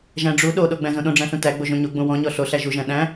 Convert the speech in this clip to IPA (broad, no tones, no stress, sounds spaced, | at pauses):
ʒ æ̃ ɖ͡ʐ u ɗ o ɗ o ɡ͡b æ̃ z õ ɗ õ ɖ͡ʐ æ̃ ɬ ũ t æ ɡ͡b o ʒ õ ɲ o ɡ͡b õ w ɔ̃ ɲ ɔ ɬ o ɬ æ ʒ u ʒ æ̃ ɗ æ̃